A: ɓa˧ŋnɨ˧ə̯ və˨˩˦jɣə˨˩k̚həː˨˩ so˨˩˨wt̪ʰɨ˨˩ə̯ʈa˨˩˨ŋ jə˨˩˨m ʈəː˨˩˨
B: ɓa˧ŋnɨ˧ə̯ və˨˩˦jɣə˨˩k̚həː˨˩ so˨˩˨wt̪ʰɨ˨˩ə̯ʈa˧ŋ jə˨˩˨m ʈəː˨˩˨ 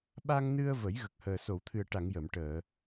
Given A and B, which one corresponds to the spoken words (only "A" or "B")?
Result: A